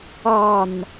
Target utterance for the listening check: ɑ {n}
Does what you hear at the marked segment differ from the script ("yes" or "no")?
no